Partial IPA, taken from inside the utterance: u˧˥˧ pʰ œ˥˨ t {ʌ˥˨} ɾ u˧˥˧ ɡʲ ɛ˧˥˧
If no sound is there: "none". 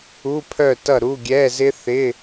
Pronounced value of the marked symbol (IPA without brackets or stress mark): ʌ˥˨